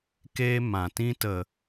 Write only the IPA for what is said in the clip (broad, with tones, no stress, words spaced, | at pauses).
keː˦mã˨ tĩ˧tə˨